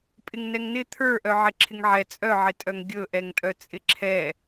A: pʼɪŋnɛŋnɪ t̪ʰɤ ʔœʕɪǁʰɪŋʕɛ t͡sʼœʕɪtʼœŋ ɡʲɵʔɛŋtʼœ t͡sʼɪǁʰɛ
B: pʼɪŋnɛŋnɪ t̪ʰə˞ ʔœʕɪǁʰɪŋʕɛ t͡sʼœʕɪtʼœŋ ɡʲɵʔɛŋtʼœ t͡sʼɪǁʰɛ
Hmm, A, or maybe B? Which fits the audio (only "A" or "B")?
B